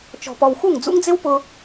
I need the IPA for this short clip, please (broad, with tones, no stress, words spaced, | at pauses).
t͡ʃɔ̤˨pɔ˨wxu˦˨ŋ d͡zṵ˦ŋd͡zɪ˦wpʊ˧